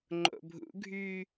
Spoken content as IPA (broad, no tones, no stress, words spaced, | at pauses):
ŋ͡ǃo̰bʱṵɡʱyː